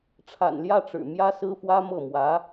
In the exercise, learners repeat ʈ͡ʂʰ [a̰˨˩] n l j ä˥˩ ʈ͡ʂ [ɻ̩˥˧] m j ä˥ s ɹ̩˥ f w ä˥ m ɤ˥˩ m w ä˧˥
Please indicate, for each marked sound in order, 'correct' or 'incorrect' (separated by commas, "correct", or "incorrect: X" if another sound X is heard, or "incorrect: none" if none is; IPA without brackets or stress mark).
correct, incorrect: ɻ̩˨˩